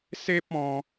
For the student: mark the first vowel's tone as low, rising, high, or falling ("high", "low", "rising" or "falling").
high